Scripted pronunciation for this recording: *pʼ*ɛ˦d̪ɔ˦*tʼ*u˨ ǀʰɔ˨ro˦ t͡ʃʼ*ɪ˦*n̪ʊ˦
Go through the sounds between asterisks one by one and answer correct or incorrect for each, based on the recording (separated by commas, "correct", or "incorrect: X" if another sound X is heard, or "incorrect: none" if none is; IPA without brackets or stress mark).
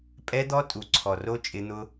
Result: correct, correct, correct